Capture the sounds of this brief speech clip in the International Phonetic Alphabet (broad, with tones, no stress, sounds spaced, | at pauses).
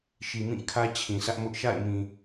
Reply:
ʃ i˨ m ĩ˦˨ kʰ ä˦ t͡ɕʰ ĩ˨ sʰ ä˦ ʔ m ʊ˦ ʔ ʃ a̰˦˨ ɪ̯ m ĩ˨